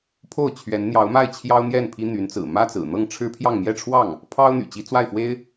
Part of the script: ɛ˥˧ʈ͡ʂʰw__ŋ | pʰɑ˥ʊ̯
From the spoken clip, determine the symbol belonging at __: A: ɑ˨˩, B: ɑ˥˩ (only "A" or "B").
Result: B